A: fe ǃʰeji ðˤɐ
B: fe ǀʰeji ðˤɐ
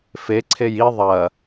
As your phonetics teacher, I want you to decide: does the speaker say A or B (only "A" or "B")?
B